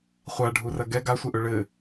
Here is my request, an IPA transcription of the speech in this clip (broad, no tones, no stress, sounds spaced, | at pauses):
χʷ a ɖʱ u r ɐ ɡ ɛ ɡ a sʷ ɛ ʔ ɵ ɭ ɘ